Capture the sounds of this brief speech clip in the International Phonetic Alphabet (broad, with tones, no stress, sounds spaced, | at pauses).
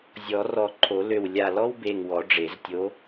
zʲ ɔ˨˩˦ r ɔ˧˩ ǃʰ o˨˩˦ l ø˧˩ w lʲ a˧˩ l ɔ˥ w b e˧˩ ŋ w ɔ˨˩˦ ɖ͡ʐ e˨˩˦ z tʲ o˧˥